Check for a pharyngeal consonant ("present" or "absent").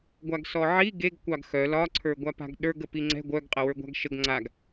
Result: present